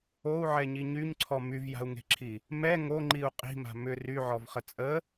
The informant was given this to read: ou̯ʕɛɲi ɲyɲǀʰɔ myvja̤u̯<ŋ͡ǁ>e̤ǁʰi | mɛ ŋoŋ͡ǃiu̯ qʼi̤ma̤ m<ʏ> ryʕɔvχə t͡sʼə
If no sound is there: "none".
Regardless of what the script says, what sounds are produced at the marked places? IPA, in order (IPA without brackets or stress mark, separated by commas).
ŋ, ʏ